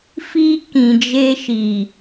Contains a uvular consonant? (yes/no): no